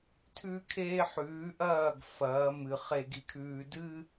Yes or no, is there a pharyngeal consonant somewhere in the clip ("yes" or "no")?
yes